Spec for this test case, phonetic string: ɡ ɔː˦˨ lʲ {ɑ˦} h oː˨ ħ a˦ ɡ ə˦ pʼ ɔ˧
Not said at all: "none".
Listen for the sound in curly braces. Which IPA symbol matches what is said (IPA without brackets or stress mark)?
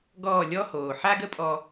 ɔ˦